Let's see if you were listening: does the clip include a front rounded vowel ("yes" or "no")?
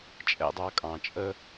no